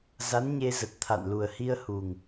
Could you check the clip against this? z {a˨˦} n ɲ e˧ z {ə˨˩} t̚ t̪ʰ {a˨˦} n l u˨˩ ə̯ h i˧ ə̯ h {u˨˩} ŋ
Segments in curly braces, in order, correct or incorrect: correct, correct, incorrect: a̰˧˨, correct

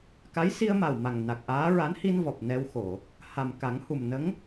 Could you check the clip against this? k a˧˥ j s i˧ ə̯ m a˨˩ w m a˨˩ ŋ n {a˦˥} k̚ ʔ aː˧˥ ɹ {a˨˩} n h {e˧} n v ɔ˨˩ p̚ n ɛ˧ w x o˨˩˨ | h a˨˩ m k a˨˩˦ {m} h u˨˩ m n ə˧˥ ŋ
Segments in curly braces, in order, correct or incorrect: incorrect: a˨˩, incorrect: a˧˥, incorrect: i˧, incorrect: ŋ

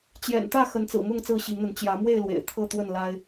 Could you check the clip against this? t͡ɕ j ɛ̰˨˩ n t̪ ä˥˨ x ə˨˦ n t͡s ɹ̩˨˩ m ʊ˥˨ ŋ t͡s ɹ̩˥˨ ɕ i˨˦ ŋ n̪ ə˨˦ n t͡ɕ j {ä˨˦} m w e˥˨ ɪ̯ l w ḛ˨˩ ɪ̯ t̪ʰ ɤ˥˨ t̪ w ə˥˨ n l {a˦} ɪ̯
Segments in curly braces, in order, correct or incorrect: correct, correct

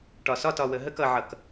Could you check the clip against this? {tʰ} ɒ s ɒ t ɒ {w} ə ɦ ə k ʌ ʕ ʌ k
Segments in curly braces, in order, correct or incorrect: incorrect: ʈ, correct

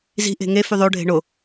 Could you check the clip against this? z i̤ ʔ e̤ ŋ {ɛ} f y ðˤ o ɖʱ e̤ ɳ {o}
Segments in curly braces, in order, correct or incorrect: incorrect: e, correct

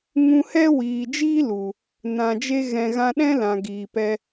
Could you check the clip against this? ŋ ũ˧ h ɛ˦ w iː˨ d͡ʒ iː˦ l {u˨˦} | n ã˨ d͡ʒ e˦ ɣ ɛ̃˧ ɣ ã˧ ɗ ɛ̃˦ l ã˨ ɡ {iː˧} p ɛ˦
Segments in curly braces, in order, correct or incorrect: incorrect: u˨, incorrect: iː˨

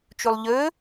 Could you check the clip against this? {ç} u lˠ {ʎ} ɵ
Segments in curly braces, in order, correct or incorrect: incorrect: t͡ʃ, correct

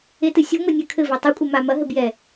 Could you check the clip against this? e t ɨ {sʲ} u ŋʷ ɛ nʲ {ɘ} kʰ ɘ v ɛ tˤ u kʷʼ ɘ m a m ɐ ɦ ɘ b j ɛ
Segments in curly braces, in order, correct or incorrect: correct, correct

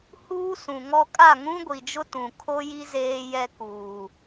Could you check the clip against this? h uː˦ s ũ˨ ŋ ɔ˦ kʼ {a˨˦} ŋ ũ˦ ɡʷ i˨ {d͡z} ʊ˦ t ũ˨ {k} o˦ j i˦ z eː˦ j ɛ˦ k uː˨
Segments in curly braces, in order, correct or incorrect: incorrect: a˦˨, incorrect: d͡ʒ, incorrect: kʰ

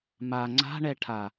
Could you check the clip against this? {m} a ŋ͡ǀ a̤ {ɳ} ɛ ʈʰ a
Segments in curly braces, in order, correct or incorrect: correct, correct

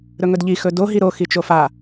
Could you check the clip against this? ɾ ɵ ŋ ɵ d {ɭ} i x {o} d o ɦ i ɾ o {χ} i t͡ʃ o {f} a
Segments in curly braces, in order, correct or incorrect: incorrect: ʎ, incorrect: ɵ, incorrect: x, correct

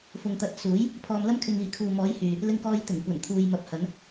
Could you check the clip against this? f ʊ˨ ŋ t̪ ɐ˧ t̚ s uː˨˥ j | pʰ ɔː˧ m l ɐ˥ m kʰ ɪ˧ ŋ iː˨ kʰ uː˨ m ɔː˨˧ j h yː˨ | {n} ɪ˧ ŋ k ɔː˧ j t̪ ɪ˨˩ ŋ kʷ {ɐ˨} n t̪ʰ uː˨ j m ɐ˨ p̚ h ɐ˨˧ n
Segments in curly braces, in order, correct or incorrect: incorrect: l, incorrect: ɐ˨˩

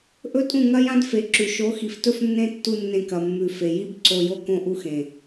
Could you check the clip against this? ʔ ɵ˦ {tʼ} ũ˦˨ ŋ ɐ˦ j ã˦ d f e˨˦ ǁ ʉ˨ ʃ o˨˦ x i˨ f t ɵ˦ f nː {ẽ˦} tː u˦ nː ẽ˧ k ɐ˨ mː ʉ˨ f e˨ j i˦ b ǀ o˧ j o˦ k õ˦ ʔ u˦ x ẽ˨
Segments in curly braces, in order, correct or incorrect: correct, correct

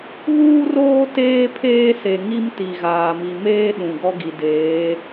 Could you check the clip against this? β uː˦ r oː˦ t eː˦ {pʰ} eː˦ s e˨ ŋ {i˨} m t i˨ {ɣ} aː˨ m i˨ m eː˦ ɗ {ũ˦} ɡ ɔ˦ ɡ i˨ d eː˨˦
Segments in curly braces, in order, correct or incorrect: correct, incorrect: i˦, correct, incorrect: ũ˨

